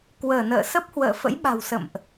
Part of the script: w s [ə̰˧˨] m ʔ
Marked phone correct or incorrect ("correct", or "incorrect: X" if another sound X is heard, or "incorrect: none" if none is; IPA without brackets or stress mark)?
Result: correct